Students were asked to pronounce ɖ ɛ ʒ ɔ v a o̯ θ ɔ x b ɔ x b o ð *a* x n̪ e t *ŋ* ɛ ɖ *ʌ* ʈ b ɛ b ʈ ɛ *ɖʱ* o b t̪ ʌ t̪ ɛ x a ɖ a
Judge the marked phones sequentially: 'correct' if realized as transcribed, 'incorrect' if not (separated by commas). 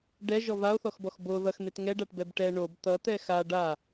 incorrect, correct, incorrect, incorrect